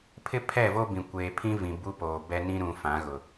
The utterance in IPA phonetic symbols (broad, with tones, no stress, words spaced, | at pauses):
pʰɪ˦pʰɛ˦˨vo˦bĩ˨ kʷeː˨pʰĩ˦vĩ˨ bu˦poː˨ bɛ˦nĩ˦ɾũ˨ fã˨˦ɣʊ˨